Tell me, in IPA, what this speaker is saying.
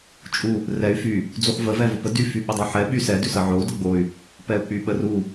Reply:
t͡ʃʼ u | r ɛ y̯ f y | d͡z u χ v ə v ɛ v ə p ə d y f y ɓ ə dˤ o ħ ɛ ɓ y s ɛ d ʉ s ə ʕ o u̯ d ə ɡ͡b o y̯ | p ɛ u̯ k͡p y ɓ ə r u

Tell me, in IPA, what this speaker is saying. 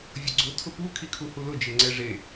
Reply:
vʲ ʊ ɡ͡ǀ ʊ tʰ ʊ p u kʰ i kʰ u h u l ʊ d͡ʒ ɪ ŋ͡ǀ ɛ ʐ e

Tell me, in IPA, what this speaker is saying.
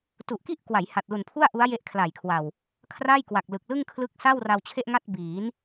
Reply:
t u˨˩ ʔ k i˥˩ ʔ k w a˩˦ j h a˨˩ t̚ l u˨˩ n pʰ u˥˩ a̯ ʔ u˦˥ a̯ j e˦˥ ʔ kʰ l a˨˩ j kʰ w a˨˩ w | kʰ r a˥˩ j k w a˨˩ k̚ l ɯ˨˩ k̚ l ɯ˥˩ ŋ kʰ l ɯ˦˥ k̚ s a˥˩ w r a˧ w t͡ɕʰ e˥˩ ʔ ŋ a˥˩ t̚ b iː˩˦ n

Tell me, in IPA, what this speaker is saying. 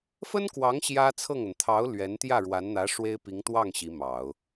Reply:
f ə˥ n k w ɑ˧˥ ŋ ɕ j ä˥ t͡sʰ ɤ˥˩ ŋ ə˩ n t̪ʰ ɑ˧˥ ʊ̯ l ɥ ɛ˧˥ n t̪ j ä˥˩ ɻ w a˧˥ n n̪ ä˧˥ ʂ w e˥ ɪ̯ p i˧˥ ŋ t̪ w ɑ˥˩ ŋ ɕ i˧˥ m ɑ˨˩˦ ʊ̯

